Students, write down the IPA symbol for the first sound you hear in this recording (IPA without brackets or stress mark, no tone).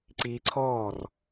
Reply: ǀ